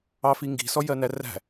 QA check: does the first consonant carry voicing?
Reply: no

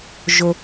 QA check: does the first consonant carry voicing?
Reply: yes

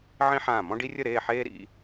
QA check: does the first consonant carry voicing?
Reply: yes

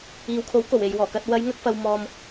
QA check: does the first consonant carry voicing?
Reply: yes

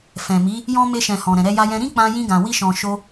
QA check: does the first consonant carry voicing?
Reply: no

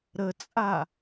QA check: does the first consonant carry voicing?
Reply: yes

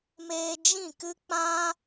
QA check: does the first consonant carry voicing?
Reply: yes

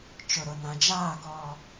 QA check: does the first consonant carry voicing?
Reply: no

